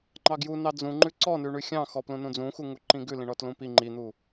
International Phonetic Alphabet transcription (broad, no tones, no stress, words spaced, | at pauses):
ŋ͡ǃɑɡjunɑ d͡zũŋ͡ǃʉ ǀɔnʉɳʉ xʲɑ̃xɔ plũnũd͡zũxu ŋuǃĩɡʉ lĩɳɔtlũpi ŋ͡ǃin̪u